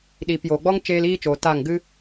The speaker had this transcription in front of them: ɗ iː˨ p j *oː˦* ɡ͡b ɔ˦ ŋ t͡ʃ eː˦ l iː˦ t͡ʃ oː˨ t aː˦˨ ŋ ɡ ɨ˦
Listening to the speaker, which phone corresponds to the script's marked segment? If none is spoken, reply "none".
oː˨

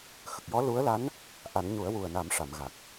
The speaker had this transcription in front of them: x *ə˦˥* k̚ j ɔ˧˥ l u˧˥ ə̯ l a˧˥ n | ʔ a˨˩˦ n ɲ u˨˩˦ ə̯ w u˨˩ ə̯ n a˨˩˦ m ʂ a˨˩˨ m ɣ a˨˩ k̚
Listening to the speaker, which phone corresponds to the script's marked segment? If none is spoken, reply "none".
ə˨˩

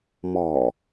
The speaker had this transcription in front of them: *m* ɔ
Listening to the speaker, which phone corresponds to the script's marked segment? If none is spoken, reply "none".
m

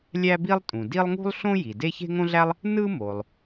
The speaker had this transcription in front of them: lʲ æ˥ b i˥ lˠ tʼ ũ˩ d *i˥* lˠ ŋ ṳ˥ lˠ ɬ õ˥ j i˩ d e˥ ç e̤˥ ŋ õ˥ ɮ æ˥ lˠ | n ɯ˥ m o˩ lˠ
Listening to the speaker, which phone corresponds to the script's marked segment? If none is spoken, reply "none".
i˥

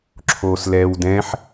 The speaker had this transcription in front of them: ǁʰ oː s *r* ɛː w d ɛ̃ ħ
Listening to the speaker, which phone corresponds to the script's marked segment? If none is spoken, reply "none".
l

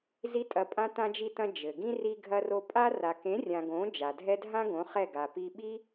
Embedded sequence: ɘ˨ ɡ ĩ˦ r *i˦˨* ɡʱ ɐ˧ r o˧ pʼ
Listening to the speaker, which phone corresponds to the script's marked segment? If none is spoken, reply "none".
i˧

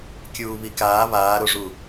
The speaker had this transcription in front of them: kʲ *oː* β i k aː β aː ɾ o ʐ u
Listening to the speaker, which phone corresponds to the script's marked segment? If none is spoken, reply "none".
uː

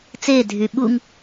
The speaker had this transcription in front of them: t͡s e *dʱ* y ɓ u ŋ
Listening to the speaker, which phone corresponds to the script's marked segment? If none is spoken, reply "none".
dʱ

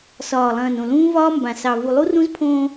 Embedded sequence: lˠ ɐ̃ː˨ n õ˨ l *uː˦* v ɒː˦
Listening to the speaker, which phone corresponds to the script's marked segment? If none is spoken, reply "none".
ũː˦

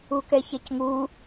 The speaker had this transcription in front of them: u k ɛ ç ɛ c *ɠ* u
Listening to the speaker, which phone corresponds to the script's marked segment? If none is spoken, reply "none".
ŋ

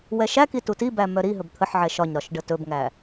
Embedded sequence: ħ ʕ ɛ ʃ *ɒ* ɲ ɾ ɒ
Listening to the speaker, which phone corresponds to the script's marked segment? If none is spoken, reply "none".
ɒ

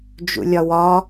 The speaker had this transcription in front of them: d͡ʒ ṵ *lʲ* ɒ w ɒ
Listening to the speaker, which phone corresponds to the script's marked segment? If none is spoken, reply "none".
lʲ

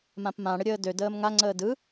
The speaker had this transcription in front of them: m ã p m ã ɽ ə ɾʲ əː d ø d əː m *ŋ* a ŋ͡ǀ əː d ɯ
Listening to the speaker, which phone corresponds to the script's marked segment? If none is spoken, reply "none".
ŋ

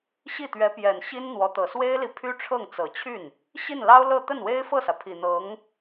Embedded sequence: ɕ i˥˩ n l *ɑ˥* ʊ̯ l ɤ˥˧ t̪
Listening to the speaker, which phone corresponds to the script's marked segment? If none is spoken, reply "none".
ɑ˥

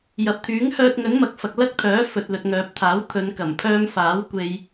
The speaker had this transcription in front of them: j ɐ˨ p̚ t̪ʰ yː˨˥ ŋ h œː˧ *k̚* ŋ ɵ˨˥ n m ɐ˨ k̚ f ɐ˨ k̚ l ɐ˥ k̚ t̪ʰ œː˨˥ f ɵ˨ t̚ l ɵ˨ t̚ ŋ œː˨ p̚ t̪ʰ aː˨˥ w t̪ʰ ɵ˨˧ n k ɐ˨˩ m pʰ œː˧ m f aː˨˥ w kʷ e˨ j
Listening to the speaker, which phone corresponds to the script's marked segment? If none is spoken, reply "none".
t̚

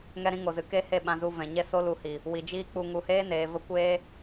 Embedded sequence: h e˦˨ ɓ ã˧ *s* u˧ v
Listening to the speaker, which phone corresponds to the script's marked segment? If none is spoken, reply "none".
z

